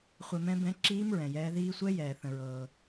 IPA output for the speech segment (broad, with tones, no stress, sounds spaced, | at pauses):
χʷ ɛ˧ m ɛ̃˧˥ b ɛ̃˧˥ ǁ iː˧˥ m ɹ ɛ̃˩ j ɛː˩˧ ð iː˧ sʷ ɛ˧˥ j ɛː˩ θ ə̃˩ ɹ ɤː˩